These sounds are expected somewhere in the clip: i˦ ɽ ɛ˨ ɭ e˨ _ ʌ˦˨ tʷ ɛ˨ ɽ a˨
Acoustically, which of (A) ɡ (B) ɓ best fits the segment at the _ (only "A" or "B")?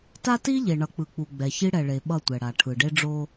B